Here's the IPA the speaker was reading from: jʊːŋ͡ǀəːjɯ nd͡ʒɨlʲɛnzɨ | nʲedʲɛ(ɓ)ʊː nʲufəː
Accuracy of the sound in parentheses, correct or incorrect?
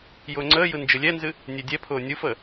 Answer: incorrect